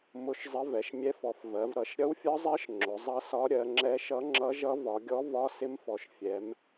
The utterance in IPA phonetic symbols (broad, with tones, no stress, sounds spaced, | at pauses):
m ʊ˧˥ ʃ zˤ ə˧˥ v ɛ˩˧ ʃ mʲ ɛ˧˥ f ɔ˩˧ f v ɜ˩˧ v ɾ ʌ˩˧ ʃ ɾʲ ʌ˧˥ w fʲ ɒ˧˥ zˤ ɜ˧˥ ʃ ŋ͡ǁ ʊ˩˧ zˤ ʌ˧˥ s ɒ˧˥ ɾʲ ɜ˩˧ ŋ͡ǁ ɛ˧˥ ʃ ʌ˧˥ ŋ͡ǁ ʌ˧˥ ʒ ʌ˧˥ v ɒ˩˧ ɡʲ ɔ˧˥ v ɒ˧˥ s ɪ˧˥ m f ɔ˩˧ ʃ fʲ ɛ˩˧ m